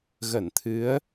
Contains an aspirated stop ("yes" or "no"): yes